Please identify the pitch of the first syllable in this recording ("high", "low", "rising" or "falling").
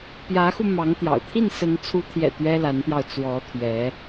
rising